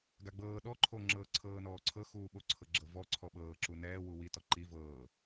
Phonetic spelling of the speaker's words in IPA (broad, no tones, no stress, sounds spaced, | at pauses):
ɡ a ɡ͡b ɤː ɗ ɔ ǃʰ o ŋ͡ǁ ɤː ǀʰ ɤː n ɔː ǀʰ ɤ x uː ɓ o ǀʰ ɤ ɡ͡ǁ ɤ v ɔ ǀʰ ɔ ɓ ɤː ǁ u n ɛː w u w i t ɔ ǃ i v ɤː